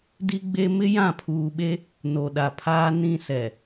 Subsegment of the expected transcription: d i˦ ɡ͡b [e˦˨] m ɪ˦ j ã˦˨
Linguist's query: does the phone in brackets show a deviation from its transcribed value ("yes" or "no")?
yes